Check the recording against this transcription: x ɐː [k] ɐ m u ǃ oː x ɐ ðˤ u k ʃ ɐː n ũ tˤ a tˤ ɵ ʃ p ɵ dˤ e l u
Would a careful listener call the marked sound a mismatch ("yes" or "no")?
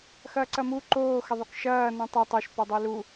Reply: yes